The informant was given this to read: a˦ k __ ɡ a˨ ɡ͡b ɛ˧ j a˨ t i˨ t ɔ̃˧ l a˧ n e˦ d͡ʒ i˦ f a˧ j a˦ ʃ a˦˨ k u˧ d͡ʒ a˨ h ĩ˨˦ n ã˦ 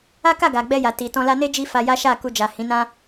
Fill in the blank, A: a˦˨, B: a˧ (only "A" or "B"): A